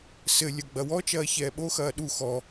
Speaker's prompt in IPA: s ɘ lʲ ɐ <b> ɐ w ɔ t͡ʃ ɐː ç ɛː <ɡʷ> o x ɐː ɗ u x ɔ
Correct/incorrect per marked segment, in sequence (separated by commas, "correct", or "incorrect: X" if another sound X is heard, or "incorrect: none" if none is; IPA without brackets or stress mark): incorrect: ɡ͡b, incorrect: ɓ